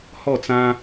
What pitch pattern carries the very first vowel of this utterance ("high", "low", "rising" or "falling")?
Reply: falling